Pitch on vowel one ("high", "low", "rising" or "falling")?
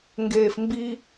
low